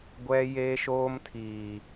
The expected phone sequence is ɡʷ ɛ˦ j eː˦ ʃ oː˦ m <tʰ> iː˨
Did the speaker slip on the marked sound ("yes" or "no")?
no